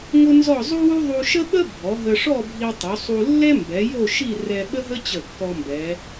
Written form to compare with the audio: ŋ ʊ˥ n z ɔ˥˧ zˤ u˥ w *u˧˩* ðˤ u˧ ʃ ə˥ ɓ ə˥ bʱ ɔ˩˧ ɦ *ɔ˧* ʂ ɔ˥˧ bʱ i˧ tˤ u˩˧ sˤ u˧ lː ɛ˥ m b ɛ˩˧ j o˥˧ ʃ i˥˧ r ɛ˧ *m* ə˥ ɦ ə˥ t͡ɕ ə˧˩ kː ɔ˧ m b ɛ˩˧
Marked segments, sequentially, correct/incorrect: incorrect, incorrect, incorrect

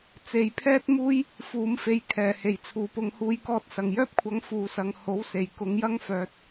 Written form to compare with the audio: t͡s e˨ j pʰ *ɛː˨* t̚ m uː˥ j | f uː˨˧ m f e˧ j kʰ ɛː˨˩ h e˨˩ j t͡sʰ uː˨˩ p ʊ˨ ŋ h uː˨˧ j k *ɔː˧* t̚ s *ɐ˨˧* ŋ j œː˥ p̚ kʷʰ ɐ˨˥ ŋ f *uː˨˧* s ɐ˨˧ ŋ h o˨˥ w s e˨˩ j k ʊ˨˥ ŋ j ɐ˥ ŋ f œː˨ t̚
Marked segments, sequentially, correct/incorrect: incorrect, correct, incorrect, correct

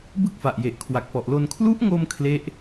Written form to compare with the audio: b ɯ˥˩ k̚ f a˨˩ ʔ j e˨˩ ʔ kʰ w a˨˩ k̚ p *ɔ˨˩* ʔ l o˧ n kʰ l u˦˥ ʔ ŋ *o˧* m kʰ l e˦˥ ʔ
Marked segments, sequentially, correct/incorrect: correct, correct

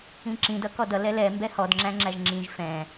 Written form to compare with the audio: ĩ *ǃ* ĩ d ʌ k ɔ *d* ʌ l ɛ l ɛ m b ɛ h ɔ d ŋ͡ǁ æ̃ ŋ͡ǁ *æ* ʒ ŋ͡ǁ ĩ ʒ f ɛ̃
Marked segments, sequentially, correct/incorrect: incorrect, correct, correct

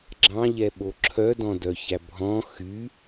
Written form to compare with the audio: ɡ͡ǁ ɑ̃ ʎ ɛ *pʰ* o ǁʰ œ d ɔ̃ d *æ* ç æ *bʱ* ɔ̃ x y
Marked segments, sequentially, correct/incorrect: incorrect, incorrect, correct

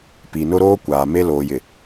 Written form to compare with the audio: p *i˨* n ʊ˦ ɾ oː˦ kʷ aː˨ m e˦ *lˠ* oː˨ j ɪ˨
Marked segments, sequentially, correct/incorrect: correct, incorrect

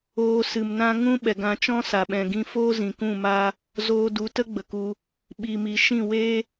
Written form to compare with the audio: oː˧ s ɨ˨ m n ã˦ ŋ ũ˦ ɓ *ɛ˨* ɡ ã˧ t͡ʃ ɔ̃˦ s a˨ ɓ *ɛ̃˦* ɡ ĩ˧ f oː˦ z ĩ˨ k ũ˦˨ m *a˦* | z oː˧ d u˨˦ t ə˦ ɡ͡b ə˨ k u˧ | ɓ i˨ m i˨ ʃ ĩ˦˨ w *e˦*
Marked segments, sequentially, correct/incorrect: correct, incorrect, correct, correct

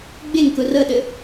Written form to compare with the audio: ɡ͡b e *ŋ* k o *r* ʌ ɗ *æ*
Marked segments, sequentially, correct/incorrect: correct, correct, incorrect

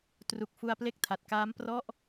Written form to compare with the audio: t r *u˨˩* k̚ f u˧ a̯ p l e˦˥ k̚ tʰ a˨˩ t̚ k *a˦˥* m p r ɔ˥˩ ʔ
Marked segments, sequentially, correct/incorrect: correct, incorrect

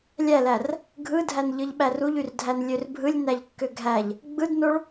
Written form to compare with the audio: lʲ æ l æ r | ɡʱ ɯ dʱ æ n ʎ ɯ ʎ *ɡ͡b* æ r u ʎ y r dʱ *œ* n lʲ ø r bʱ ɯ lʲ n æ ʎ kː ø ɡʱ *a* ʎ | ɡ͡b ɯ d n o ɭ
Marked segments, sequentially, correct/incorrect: incorrect, incorrect, incorrect

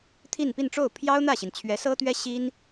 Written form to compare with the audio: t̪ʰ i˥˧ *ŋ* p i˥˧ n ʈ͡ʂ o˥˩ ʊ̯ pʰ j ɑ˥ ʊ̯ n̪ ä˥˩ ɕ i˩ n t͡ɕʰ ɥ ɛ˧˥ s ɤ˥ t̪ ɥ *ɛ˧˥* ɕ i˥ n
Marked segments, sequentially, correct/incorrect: incorrect, incorrect

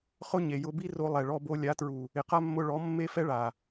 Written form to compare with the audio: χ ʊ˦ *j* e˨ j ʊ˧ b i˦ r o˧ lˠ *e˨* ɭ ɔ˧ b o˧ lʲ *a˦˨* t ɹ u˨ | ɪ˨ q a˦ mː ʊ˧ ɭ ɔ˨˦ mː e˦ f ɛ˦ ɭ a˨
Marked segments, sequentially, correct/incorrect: incorrect, incorrect, incorrect

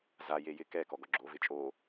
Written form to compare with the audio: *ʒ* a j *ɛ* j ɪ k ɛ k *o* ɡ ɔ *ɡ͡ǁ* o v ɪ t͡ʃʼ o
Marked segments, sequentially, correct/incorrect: incorrect, incorrect, incorrect, correct

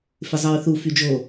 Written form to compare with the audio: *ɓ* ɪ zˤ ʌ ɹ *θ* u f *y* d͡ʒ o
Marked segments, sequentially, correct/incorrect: incorrect, correct, correct

